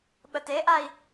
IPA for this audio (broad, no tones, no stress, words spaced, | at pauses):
ɓəteʔai̯